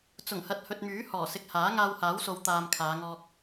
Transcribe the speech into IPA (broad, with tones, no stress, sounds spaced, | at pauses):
t͡s ʊ˨˩ ŋ h ɐ˨ t̚ h ɵ˨ t̚ m yː˨˥ h ɔː˨˩ s ɪ˨ k̚ h aː˨˥ ŋ aː˧ w h aː˨˥ w s o˨˧ w t̪ aː˨ m kʰ aː˨˧ ŋ ɔː˧ k̚